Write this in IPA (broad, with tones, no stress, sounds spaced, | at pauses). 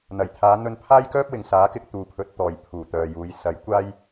n̪ ɐ˨˩ j t̪ʰ aː˨˧ n̪ ɵ˧ n pʰ aː˥ j k œː˥ p̚ w ɪ˨ ŋ s aː˨˥ k ɪ˧ k̚ t̪ uː˨ pʰ ɵ˨˥ t̚ t̪ ɔː˨ j pʰ uː˨˩ t̪ œː˨ j uː˨˧ j s ɐ˨˥ j kʷ aː˥ j